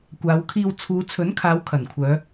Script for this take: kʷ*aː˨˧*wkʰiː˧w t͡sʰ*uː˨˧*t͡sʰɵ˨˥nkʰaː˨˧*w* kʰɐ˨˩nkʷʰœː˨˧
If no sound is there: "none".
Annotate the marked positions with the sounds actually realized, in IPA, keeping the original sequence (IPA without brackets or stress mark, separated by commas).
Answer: aː˨˧, uː˨˧, w